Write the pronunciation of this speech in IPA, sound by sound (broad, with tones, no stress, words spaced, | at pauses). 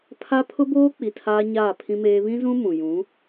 pʰa˦ pʰʊ˦boː˦k͡pi˨ tʰaː˦ɲaː˦˨pʰĩ˦meː˦ βĩ˦zũ˦ mũ˨ jũ˨˦